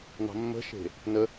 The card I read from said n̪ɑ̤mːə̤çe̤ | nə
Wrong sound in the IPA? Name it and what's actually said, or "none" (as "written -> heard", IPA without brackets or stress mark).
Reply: ç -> ʃ